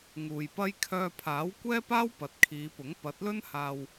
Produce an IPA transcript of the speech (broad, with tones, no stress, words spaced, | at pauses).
ŋuː˨jpɐ˥j kʰœː˧pʰaː˨˥w kʷɛː˥paː˥w pɐ˨t̚kʰiː˨˧pʊ˨˥ŋ pɐ˨˥t̚lɵ˥nhaː˨w